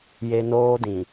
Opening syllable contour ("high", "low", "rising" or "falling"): high